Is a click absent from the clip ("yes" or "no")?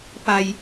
yes